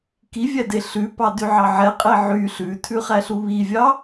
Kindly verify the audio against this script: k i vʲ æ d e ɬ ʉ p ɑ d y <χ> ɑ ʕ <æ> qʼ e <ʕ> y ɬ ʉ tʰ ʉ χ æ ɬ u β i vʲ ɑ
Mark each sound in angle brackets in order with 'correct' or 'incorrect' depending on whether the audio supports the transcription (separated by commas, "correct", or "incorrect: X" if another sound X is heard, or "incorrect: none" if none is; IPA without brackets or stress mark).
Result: incorrect: ʕ, incorrect: ɛ, correct